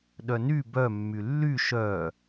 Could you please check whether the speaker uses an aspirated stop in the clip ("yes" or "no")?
no